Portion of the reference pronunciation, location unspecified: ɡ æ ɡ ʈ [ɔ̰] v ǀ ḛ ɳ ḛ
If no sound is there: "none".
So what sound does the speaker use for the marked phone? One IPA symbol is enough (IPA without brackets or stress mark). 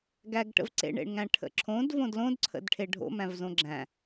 ə̰